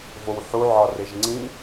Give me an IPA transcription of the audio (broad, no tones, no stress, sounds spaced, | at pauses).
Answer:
v o w ħ u ʕ ɒ r e ʒ ŋ͡ǀ ĩ